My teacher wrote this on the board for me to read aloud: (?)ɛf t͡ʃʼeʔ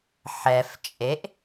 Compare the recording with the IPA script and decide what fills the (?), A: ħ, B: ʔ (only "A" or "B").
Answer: A